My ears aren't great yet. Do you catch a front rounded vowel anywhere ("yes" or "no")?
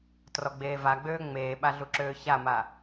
yes